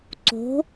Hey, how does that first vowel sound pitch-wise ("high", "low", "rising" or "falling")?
rising